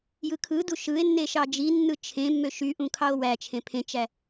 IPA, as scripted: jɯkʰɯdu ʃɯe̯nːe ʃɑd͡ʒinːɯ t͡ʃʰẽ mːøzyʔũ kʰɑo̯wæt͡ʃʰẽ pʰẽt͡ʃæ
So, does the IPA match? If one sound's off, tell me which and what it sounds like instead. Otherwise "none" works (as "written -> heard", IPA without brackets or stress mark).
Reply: z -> ʃ